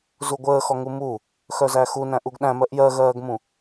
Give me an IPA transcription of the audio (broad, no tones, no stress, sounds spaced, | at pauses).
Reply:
z u ɡʷ əː x ɔ ŋ u m u | x œ z æ x u n æ̃ ʔ u ɡ ɗ æ̃ m ɜ ʔ j ɜ ɣ ɜː ɡ m ũ